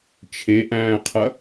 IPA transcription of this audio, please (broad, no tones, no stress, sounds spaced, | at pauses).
t͡ʃʰ e ʔ æ̃ː qʰ ɐ